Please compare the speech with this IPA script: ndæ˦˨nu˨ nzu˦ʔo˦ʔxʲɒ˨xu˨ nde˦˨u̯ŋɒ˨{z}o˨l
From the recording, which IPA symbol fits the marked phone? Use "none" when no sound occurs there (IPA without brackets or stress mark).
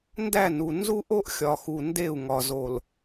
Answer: z